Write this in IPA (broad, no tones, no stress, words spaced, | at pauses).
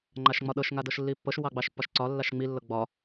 ŋ͡ǃaʃŋ͡mɒɗɤʃ ŋadɤʃlːipːɤʃ wɑɡ͡bɑʃpːɒʃǀɒ lːaʃŋ͡mi lːɤɡ͡bɒ